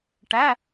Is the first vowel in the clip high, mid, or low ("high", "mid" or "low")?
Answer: low